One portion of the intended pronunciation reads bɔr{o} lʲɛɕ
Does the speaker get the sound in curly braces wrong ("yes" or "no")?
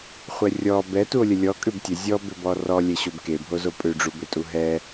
yes